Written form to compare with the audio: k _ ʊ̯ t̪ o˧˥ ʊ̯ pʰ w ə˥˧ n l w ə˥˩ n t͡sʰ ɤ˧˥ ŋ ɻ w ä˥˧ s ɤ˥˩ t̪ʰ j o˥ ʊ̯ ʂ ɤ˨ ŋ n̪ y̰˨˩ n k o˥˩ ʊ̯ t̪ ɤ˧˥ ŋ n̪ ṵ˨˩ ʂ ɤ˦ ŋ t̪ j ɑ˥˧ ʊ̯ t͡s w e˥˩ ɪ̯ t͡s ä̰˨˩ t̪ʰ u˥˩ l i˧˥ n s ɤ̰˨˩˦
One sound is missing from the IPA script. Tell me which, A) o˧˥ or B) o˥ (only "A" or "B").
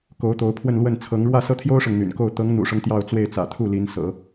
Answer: A